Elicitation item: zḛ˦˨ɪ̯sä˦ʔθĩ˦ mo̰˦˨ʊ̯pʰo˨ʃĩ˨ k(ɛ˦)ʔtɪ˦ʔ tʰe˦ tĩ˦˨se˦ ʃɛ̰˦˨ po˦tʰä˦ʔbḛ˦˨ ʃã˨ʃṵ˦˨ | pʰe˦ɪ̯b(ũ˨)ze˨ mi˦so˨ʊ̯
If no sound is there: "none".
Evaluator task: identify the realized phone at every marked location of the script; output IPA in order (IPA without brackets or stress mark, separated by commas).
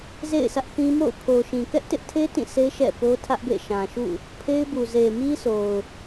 ɛ˦, u˨